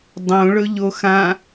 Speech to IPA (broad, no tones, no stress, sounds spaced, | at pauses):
dˤ õ ɭ ɵ ʎ o x ã